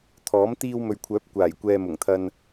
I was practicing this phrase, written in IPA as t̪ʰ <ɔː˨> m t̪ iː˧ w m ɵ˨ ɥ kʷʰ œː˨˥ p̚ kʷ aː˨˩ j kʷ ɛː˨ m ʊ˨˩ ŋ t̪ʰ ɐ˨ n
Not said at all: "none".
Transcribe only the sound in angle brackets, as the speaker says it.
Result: ɔː˨˥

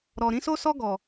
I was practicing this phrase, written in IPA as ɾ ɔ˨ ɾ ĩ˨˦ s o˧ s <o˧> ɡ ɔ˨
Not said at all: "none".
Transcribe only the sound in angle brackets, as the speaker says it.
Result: ɔ˧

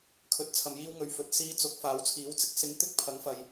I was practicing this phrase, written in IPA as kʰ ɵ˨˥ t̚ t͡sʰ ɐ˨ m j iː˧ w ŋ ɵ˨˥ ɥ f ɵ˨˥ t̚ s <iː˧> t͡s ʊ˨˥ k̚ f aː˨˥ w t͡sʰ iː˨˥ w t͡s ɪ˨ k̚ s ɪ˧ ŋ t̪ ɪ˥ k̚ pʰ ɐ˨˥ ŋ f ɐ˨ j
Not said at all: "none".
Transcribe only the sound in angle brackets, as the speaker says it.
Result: iː˧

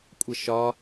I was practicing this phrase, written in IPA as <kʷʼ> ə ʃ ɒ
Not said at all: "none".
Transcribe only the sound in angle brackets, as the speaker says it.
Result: kʷʼ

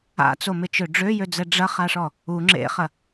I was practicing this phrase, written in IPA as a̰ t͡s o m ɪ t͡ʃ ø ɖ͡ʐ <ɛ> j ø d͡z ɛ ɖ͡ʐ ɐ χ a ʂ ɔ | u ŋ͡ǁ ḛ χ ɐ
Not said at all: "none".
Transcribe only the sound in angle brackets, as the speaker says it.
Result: ø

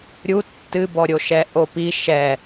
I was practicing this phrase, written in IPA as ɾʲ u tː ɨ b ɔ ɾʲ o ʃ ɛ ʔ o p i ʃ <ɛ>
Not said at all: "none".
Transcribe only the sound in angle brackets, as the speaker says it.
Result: ɛ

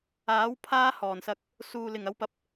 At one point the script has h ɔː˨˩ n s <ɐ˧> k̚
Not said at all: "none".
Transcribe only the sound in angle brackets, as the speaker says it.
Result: ɐ˧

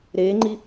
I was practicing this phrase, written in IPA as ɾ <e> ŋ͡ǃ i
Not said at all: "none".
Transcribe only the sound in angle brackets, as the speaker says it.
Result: eː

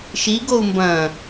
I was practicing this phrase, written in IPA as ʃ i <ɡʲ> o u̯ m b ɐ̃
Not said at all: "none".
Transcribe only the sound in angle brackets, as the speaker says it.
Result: ɡ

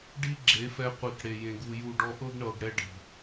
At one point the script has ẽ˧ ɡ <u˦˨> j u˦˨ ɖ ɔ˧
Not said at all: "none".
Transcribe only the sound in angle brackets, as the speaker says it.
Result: u˧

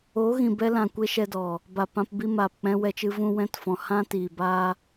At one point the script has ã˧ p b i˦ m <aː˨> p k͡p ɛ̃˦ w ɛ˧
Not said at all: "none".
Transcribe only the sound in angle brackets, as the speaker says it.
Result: aː˨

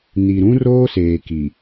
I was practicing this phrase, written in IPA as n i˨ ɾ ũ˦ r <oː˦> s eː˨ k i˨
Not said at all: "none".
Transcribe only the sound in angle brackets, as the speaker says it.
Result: oː˦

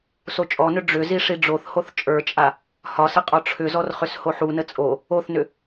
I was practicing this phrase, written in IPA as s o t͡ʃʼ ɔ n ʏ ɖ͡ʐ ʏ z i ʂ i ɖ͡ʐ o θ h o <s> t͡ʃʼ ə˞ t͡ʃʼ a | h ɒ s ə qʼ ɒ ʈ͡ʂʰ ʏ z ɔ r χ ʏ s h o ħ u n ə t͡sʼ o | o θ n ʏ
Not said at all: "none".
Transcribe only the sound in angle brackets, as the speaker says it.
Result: θ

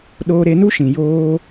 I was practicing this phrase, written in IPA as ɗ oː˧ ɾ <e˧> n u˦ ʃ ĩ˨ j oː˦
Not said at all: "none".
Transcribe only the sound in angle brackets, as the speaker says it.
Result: e˧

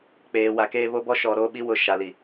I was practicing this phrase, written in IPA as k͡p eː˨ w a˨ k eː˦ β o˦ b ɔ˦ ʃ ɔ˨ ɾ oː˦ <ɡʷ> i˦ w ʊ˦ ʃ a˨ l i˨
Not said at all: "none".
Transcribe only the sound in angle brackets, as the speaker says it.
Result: ɓ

